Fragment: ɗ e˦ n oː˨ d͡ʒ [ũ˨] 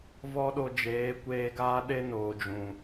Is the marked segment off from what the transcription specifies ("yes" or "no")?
no